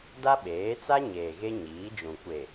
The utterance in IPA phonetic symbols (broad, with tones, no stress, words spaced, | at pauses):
da˦ɓeː˨˦t͡sa˦ ɲeː˨ɣe˦ɲiː˨˦d͡ʒũ˨ kʷe˨